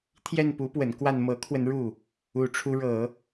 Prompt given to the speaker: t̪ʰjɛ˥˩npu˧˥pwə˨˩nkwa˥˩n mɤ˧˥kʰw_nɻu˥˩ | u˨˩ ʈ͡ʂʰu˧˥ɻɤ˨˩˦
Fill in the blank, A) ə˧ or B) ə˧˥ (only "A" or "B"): A